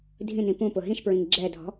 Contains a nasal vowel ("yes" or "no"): yes